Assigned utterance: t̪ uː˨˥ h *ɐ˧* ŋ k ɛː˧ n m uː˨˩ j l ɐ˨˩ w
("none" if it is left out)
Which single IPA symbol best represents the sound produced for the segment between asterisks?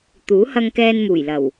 ɐ˧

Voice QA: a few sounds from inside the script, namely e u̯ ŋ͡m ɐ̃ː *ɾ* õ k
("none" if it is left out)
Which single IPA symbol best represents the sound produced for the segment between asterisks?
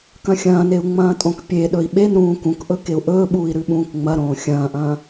tʼ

